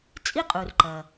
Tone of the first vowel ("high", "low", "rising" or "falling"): high